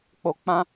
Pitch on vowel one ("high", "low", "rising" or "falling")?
low